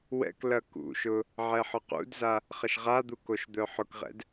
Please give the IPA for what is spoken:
wɛ̰klɐ kṵʃʊ | ʕɛħɔqṵdza | χɐʃʁad̪u koʃd̪œħʊkʁɛ̰d

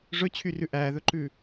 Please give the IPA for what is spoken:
ʐɵt͡ɕʰyrʉ ʔæðɵǃʉ

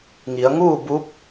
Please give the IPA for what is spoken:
ŋi˩˧ə̯ ŋuː˥˨bu˧˥p̚

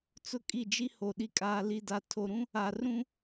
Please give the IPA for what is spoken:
t͡sʊ˦kʼi˦˨d͡ʒi˦ho˨ ɗi˨kʼaː˨li˨da˨ tʰo˨ɾũ˦ | a˨rũ˦

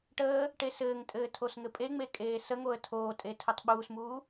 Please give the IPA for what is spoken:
ʈəː | ʈesɘːŋtʼɘː tʰosŋɘpʼeŋ͡me kʼeːsəŋoə̯ tʰoːtʼe tʰutˤɓuːsmuː

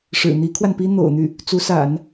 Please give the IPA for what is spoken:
ʂɻ̩˨˩ n̪i˧˥kʰwa˧npi˥ n̪o̰˨˩ʊ̯n̪y˥˩ | t͡su˧˥sa̰˨˩˦n

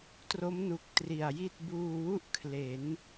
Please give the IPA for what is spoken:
tro˦˥mnu˨˩k̚ tri˨˩a̯ji˥˩t̚ buː˧wu˥˩ʔ kʰle˩˦n

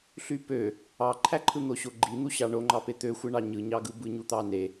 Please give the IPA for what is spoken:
ɬypø | ɑǃʰæǃʰɯn̪o ɕoɡ͡ǃin̪uɕɑ ɳoŋ͡ǃɑpe t̪øxʷɯɳɑ ɲɯɲɑɡɯ bɯɲut̪ɑne

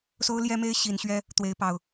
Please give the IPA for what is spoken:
so˦ʊ̯ljɛ˦me˦ɪ̯ ɕi˨˦nɕɥɛ˦ | t̪we˨˦ɪ̯pɑ˨˩ʊ̯

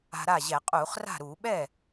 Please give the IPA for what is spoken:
a̤˧ɾa˥˩ʑɛ˧˩˧ qʼuː˧˩˧χ ra̤˥˩ ɾuː˧˩˧ɓɛ˥˩

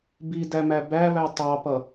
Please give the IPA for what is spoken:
bidæmæ bæβæ tˤɑpʌ

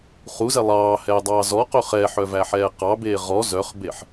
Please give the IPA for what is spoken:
χuzɛ lˠɑːhɛːdˤɑː zɔqɵ χɛħœvæħɛː qɑbeː ʁɔ zœχbeħ

